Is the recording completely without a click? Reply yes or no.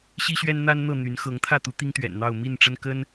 yes